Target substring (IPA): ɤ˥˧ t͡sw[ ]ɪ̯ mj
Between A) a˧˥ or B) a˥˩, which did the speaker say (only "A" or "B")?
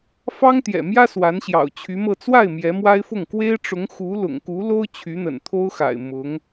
B